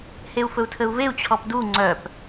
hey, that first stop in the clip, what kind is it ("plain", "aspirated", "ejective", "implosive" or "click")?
aspirated